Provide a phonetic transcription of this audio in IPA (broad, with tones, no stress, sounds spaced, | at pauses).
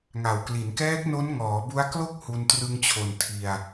ŋ a˨˩ w k l i˩˦ n k ɛː˦˥ k̚ n o˦˥ n ŋ ɔː˩˦ b u˦˥ a̯ k l o˥˩ k̚ h u˧ n t r ɯ˧ ŋ t͡ɕʰ o˨˩ n tʰ i˧ a̯